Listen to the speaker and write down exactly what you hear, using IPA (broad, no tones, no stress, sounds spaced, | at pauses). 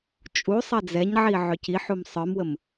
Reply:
t͡ʃʼ u sˤ ɛ d͡z ɛ ɲ ʕ i ʕ ø c i ħ u m sˤ ə˞ m w ə m